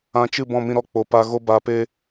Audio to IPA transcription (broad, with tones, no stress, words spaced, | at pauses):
ã˧t͡ʃɨ˦˨ bɔ̃˦˨mĩ˧ɾɔ˦˨k͡po˨ pa˨ ɣo˧baː˨peː˧